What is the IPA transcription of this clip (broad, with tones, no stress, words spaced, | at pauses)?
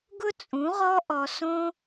ɡʊ˦t͡sʼũ˨˦ʁɔ˦ʔɔ˧ sõ˦